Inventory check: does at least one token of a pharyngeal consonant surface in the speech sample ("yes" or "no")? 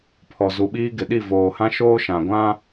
no